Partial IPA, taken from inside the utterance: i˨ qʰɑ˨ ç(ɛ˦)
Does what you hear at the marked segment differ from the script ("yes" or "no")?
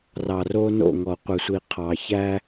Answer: yes